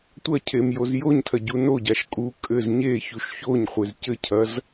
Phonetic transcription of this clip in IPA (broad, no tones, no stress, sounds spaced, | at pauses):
tʷ ɐ cʰ e m j o z j o ɲ tʰ ɐ ɟ u n o ɟ a ʃ kʼ u kʼ ɘ z ɲ e ç u ʃ ç o ɲ χʷ e z c ɘ cʰ ɐ z